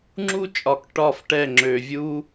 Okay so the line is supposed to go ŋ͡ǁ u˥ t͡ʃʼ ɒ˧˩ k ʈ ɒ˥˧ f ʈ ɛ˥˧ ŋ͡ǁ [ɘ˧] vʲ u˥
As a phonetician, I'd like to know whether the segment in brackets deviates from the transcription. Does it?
yes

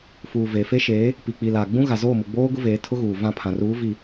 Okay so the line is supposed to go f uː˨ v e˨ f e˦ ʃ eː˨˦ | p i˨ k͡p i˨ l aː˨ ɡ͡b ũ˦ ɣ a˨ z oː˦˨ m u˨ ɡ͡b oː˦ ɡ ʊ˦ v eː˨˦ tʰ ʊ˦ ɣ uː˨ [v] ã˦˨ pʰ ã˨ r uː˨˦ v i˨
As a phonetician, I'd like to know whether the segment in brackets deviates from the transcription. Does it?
no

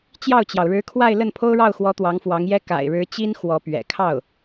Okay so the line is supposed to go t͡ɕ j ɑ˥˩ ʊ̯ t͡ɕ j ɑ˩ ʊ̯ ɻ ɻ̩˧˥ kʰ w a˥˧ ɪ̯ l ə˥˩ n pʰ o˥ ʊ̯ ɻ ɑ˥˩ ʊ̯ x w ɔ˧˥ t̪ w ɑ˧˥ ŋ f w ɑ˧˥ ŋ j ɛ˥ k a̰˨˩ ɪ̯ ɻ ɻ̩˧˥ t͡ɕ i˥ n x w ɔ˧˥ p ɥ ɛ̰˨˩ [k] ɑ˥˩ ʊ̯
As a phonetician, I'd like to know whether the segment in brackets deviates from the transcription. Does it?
yes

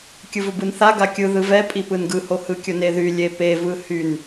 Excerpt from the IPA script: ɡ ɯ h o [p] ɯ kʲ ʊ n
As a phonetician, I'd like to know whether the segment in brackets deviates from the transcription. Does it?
yes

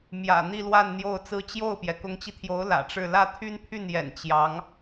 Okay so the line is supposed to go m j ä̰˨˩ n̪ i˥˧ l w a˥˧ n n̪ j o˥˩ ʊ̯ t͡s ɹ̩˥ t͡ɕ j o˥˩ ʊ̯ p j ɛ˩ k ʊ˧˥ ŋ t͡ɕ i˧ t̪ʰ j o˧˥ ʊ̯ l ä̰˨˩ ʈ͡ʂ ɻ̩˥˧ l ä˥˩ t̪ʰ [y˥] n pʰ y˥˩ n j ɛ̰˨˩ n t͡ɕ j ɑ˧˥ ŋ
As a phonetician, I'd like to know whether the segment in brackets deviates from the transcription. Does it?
no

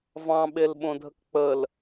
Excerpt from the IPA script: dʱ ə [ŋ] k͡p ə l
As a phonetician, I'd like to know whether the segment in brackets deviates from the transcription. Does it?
yes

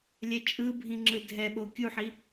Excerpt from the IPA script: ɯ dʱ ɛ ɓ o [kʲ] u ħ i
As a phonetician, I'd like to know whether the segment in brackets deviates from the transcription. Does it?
no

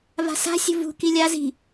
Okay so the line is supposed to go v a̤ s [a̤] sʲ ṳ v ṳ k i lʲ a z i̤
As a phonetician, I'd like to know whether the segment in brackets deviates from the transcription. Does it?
no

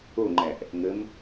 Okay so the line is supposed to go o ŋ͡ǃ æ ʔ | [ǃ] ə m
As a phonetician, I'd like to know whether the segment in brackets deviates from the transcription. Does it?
yes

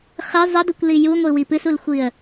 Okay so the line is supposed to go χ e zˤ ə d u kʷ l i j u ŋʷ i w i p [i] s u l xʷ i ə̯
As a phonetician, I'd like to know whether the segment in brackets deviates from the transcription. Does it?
yes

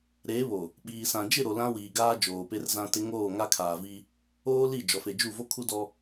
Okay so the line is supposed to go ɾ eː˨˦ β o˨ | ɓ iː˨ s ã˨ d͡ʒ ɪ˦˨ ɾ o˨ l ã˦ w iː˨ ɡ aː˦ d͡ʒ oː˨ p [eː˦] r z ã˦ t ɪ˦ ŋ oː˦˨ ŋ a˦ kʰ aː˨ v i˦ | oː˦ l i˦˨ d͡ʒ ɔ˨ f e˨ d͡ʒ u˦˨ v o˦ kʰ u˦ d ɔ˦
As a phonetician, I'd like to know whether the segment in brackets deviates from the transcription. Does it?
yes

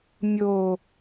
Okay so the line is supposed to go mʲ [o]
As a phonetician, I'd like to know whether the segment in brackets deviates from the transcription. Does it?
no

